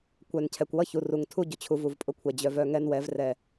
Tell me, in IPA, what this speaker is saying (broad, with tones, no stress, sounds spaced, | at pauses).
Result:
kʷ œ˨ n cʰ ɛ˨ kʷ w ʌ˦ ç u˨ r u˨ ŋ tʰ u˦ ɟ ʊ˨ t͡ɕʰ u˨ v u˨ v pʼ ʊ˦ kʷʰ ɛ˨ d͡ʑ œ˨ v œ˦˨ ŋ ɛ˦ n w ɛ˨˦ v r ɛ˨